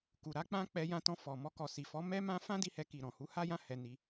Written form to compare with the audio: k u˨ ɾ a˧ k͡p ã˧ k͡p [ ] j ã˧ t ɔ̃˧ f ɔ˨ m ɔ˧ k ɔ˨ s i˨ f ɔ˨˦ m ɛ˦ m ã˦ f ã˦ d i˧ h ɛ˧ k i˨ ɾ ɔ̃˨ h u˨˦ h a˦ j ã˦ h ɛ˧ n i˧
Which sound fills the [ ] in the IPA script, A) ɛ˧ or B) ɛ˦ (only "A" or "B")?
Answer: A